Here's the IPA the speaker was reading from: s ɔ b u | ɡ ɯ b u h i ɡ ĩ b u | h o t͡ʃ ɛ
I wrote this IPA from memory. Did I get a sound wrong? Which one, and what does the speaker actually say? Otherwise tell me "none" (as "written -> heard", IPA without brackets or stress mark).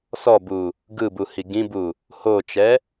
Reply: none